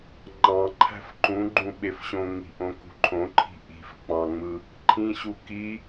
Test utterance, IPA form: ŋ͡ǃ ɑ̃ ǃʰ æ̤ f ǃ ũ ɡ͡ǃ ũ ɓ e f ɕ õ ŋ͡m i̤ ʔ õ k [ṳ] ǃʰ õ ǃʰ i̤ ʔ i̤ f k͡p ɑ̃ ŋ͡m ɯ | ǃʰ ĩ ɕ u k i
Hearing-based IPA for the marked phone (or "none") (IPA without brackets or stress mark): ṳ